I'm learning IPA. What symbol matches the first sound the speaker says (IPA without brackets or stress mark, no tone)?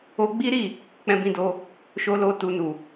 o